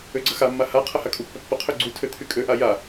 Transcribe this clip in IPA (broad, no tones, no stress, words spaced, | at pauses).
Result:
øɡ͡ǀɐxamːa ha qʰɐhakʼupːɐ pːəqʰø ɡ͡ǀutʰø t̪ʰykʼøʔa ja